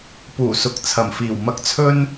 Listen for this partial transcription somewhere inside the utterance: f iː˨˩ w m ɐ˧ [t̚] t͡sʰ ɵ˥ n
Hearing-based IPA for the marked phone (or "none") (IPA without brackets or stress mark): k̚